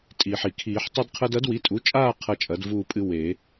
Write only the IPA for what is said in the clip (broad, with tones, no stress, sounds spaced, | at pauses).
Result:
tʼ iː˩ ħ i˩ kʰ iː˨˩˦ ħ tˤ ɨ˦ d qʰ ɐ˦ d ɐ˩˥ d w i˩˧˩ tʼ u˩˥ t͡ʃʼ aː˦˨ qʰ ɐ˦˨ t͡ʃʼ ɐ˩˥ d v uː˦˨ pʼ ɨ˦ w e˨˩˦